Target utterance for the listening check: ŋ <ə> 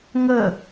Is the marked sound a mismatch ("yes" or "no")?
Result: no